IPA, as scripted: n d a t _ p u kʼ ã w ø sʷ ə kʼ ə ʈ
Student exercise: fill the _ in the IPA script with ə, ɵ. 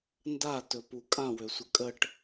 ɵ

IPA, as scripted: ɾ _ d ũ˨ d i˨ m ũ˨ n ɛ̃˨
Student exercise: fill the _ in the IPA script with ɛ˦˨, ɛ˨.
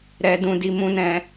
ɛ˨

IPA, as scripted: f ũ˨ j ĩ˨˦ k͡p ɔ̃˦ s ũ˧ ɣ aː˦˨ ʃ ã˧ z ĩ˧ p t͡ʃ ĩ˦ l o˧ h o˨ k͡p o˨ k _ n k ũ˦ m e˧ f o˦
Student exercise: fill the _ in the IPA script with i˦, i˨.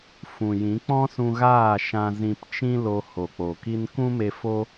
i˦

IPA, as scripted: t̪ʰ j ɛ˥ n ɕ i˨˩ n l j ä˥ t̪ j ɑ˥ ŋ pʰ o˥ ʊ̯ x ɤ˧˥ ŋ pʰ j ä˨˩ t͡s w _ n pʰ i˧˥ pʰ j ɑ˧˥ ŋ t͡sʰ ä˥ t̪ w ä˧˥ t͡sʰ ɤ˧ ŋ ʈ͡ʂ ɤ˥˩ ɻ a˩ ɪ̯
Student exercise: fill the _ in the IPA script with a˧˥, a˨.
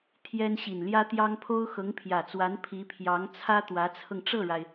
a˧˥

